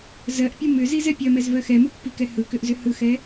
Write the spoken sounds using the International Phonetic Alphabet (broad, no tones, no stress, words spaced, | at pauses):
zɜʔpʲɯ mʏzizɛ pʲɜmɛzvɜ xɛmupːikɛ hɯkʏʔzʏ hɯxɛ